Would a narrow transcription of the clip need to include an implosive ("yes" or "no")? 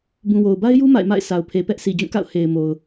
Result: no